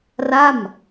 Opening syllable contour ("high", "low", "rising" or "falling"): falling